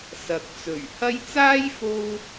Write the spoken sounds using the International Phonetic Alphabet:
sɐ˨˥k̚t͡sɵ˨˩ɥ hɐ˥j t͡saː˥jfo˧w

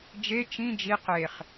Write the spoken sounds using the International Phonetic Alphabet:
d͡ʒe t͡ʃĩ d͡ʒi qeχ

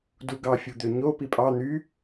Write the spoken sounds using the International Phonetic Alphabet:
duɡɑfʲud̪ø ɲo pipʼɑ n̪y

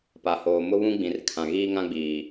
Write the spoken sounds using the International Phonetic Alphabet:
pa˨hoː˨ mʊ˦βũ˦ɡ͡bĩ˨r kʰã˨ɣiː˦ŋã˦ ɡ͡biː˨

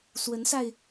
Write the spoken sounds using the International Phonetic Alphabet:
swə˨˦nsa˧ɪ̯

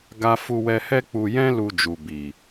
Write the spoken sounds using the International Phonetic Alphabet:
ɡa˦ fu˧wɛ˧hɛ˦ k͡pu˧jɛ̃˦ lu˧d͡ʒu˨ bi˨

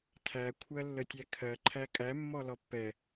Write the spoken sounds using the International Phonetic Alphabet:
tʰækʷʰɜlːətʲæ kʰɜǃʰæ kʼæmːɔ lɔpːɛ

